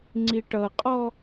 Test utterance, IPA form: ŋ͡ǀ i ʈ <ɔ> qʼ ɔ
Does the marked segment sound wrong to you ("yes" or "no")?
yes